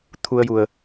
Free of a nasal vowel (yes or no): yes